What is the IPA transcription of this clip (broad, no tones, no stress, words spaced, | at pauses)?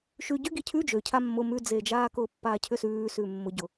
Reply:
ʃʉ ɟʏɡi cʰʉ d͡ʒø cʰamːʊ mʉd͡zed͡ʒaːkʊː pːaːcʰʏsʉː sʉːmːʊɟʊ